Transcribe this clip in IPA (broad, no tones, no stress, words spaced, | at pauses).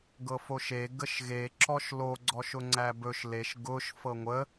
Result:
ɡɤfoʃe ɡəʃɣe ǁɔʃlo ɡ͡ǀɔʃʊŋ͡ǀæbɵʃ leʃ ɡʊʃ fɤŋʷə